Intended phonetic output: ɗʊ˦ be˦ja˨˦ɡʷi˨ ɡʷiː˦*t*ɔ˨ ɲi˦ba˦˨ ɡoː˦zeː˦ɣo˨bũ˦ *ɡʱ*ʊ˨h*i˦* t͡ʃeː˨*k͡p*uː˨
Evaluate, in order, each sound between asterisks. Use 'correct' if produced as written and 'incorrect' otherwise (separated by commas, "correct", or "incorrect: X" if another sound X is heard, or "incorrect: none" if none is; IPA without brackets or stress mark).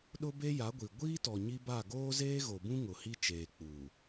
correct, incorrect: ŋ, correct, correct